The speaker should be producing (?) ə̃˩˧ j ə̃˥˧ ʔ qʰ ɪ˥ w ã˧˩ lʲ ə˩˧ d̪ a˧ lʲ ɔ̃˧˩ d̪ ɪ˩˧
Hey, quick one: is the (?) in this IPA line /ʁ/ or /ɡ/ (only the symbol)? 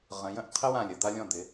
ʁ